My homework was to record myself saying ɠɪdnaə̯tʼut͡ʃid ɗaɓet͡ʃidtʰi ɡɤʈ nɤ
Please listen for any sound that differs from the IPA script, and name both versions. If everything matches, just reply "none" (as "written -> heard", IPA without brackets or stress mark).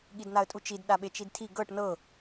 ɪ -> i